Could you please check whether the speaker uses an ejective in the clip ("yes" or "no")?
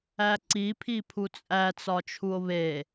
yes